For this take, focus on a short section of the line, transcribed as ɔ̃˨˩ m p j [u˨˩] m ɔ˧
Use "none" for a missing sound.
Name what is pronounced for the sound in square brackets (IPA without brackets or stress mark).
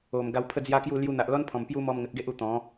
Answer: u˦